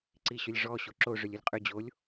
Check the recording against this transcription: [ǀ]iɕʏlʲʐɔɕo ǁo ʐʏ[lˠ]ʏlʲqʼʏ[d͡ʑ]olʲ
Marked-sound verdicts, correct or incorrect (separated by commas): correct, incorrect, correct